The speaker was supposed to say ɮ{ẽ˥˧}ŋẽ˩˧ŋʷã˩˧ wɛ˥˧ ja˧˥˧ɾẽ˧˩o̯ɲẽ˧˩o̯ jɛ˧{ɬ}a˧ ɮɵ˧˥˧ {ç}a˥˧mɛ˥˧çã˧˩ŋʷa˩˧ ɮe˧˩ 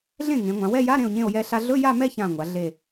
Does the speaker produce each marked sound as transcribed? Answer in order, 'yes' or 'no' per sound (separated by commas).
no, yes, no